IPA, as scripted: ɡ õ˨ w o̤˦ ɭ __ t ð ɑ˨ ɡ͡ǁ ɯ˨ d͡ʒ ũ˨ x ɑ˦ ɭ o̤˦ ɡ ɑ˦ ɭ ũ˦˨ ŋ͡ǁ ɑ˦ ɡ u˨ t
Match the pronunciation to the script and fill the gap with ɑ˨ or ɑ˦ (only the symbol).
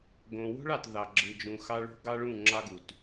ɑ˨